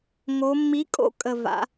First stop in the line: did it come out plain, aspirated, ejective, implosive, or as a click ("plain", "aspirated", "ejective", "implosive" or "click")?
ejective